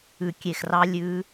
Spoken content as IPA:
ʉ˧˩kʲe˧˩xrɑ˦˥ lʲʉ˦˥

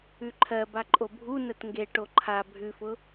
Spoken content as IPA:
ʉǃʰɜba ǃʼobʱunət ŋɡeʈo ǃʰa bʱʉfʊ

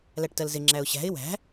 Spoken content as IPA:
læʈtɜlzɪ ŋ͡ǁæʊ̯ɕæ̤ɪ̯ wæ̤

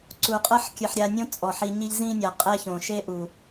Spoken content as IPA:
ǀu˨ qʼɤ˦ħ kʲɯ˨ħɾʲa˧nʲõ˦ t͡sʼɔ˨ħi˧ɲi˦ʎ zĩ˦nʲa˨qʼɛ˦ çõ˨ʃe˦ʔu˨

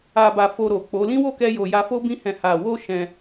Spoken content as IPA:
a˨ba˨ fo˧ɾo˨k͡po˨˦ lĩ˦wo˦˨kɛ˧jo˨ ja˧fo˦ bĩ˧hɛ̃˨ ha˨wo˧ ʃɛ̃˧

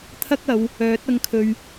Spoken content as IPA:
t̪ʰɐ˥k̚ɐ˨˧w | œː˨˥t̚ ɐ˧ŋkʰɵ˨ɥ

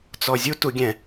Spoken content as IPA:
t͡sɔzʲu tuɡʲɛ̃

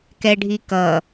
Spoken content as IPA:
kɛɖʱikʌ

